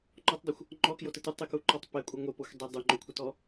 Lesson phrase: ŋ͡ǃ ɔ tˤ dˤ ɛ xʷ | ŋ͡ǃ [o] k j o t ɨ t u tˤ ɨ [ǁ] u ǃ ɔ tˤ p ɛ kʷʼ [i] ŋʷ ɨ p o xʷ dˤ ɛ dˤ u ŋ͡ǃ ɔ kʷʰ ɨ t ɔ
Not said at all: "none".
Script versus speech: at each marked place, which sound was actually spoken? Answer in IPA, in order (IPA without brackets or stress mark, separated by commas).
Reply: ɔ, k, ɨ